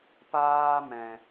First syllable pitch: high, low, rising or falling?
high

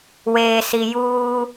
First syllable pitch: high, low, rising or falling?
low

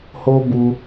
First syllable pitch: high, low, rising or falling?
high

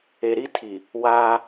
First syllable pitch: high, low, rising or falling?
low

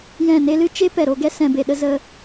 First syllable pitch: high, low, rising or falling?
falling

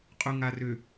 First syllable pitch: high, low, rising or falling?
low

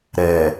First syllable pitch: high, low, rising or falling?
low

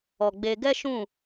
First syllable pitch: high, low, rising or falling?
low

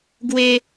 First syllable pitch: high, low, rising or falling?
high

